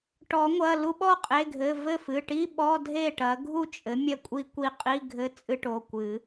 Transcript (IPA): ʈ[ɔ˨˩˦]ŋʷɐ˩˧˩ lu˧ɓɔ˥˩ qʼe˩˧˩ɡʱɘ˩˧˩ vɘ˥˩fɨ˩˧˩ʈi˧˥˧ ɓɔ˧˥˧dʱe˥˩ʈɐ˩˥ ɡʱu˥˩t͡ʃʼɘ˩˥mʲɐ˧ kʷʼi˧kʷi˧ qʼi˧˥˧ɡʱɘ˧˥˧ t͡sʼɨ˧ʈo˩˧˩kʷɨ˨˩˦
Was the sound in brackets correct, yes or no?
yes